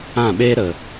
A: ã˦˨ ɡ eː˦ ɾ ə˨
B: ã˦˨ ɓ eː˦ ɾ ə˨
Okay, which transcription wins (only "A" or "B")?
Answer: B